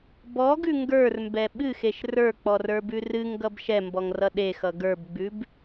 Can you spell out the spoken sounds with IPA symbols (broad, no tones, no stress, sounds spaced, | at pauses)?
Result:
b ɔ ɡ ʉ ŋ ɡ ə˞ r m b ɛ ɓ ɨ x e ʃ r ə˞ k͡p ɔ r ə˞ b ʉ r ɨ ŋ ɡ ʌ b ʃ ɛ m b ɔ ŋ r ʌ ɗ e x ʌ ɡ ə˞ b ɡ͡b ʉ b